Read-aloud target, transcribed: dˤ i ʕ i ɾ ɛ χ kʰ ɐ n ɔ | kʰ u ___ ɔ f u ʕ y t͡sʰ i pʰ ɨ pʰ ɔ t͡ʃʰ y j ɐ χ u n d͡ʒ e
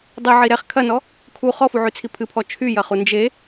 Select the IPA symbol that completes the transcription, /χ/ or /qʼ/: χ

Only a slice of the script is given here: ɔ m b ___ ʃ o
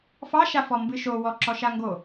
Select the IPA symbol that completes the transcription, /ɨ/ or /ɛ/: ɨ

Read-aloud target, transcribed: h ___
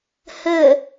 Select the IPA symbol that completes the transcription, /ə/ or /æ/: ə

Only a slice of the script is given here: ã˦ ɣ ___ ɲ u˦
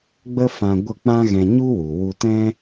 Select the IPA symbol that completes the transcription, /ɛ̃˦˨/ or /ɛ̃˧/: ɛ̃˧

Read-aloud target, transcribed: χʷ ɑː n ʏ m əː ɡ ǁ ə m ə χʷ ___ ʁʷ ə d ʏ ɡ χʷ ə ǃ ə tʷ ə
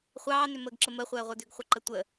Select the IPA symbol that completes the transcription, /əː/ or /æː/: əː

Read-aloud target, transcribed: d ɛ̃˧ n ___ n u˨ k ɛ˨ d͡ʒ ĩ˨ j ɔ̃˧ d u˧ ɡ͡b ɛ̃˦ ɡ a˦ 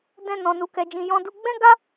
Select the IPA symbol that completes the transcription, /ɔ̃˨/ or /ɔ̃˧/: ɔ̃˨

